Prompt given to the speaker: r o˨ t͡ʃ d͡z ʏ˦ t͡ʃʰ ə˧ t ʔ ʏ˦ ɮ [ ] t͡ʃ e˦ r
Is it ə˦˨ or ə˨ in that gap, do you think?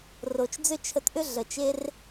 ə˨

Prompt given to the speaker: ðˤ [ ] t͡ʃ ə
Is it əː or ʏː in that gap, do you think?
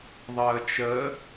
əː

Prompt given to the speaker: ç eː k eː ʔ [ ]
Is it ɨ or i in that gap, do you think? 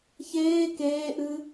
ɨ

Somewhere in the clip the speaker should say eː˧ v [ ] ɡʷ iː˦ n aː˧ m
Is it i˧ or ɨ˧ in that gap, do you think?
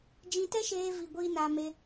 i˧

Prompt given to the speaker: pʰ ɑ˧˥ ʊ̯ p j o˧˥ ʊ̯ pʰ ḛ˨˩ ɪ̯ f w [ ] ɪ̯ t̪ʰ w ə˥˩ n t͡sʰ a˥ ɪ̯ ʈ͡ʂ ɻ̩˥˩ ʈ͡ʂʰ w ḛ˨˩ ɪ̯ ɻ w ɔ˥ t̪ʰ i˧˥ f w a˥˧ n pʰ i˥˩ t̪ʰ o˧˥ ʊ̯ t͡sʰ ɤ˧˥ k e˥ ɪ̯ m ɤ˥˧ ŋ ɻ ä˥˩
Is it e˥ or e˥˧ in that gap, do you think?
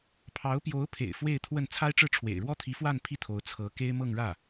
e˥˧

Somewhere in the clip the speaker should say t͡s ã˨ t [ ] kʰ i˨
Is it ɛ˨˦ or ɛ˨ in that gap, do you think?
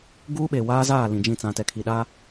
ɛ˨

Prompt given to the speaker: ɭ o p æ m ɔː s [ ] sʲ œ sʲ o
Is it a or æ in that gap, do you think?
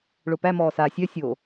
a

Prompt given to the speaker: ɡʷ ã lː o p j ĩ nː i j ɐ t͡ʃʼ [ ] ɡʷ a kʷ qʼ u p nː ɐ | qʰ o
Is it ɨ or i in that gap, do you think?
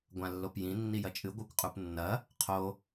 ɨ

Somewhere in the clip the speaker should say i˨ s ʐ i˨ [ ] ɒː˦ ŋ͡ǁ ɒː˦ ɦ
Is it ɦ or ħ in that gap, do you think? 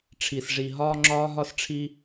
ɦ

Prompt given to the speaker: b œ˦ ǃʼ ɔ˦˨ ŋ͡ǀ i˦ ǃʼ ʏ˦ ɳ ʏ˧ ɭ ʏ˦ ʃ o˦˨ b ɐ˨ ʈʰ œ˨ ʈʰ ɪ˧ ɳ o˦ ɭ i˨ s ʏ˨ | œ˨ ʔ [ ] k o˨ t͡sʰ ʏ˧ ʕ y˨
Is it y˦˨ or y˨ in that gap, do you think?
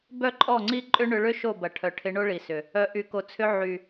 y˨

